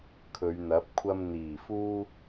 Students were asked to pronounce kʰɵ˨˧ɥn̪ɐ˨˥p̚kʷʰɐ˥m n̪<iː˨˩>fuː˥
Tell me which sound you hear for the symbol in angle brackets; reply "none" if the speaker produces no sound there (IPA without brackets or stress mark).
iː˨˩